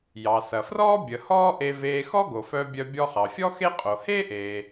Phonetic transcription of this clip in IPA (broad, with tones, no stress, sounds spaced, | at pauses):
j ɑ˩ s ɐ˩ f r ɔː˥ bʲ ə˩ h ɔː˥ ʔ e˧ v eː˧ x ɔ˥ ɡ o˩ f œ˧ bʲ œ˧ bʲ ɔ˧ χ ɑ˩ fʲ ɔ˥ x e˥ qʼ o˩ h eː˥ ʔ eː˩